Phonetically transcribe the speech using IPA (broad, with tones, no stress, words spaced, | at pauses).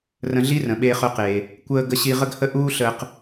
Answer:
rə̃˧ɮi˥rə̃˩ ɓeː˧χœ˧qeː˩ | kʷəː˧ ɡə˧ɕi˧ ʁə˥ɡhə˥ ʔuː˥ɬəː˧q